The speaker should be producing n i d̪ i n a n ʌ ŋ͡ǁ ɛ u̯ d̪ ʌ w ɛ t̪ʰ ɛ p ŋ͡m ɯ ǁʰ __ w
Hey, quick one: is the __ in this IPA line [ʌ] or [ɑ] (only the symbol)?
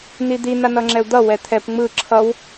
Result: ʌ